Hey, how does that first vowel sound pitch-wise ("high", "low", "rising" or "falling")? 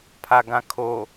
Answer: low